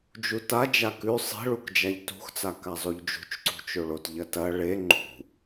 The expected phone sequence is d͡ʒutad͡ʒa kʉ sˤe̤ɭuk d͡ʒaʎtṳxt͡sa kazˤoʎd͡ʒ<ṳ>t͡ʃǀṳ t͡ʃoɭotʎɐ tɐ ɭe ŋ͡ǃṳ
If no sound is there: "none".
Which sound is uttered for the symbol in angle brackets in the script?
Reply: ṳ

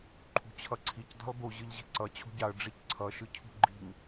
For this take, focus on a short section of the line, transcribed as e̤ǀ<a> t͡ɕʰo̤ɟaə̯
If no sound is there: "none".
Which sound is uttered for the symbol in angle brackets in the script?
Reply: ʌ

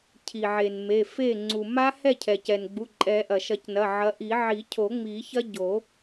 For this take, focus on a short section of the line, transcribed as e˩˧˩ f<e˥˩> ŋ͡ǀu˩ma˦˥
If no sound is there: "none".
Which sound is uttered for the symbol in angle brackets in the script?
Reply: e˥˩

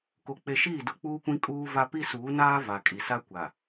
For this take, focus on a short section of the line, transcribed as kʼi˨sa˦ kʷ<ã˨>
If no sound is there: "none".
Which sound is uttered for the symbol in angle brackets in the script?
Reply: a˨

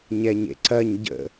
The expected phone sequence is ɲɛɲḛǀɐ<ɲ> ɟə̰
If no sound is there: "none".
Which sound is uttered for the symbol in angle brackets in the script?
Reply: ɲ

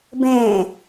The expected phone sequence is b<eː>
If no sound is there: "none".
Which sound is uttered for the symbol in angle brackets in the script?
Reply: ẽː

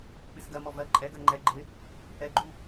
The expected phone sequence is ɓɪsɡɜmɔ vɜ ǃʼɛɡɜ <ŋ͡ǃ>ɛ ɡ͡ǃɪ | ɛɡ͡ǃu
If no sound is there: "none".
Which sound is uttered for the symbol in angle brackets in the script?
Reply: ŋ͡ǃ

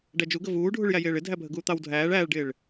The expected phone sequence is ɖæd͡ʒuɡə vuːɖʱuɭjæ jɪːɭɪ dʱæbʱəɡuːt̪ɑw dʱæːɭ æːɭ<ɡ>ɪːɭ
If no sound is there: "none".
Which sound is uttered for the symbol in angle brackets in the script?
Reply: ɖ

